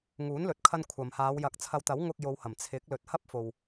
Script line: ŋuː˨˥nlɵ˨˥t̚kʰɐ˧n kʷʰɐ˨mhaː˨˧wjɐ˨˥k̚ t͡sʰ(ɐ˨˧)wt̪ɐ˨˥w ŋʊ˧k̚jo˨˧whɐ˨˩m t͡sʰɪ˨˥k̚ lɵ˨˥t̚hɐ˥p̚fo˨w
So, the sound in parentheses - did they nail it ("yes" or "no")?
yes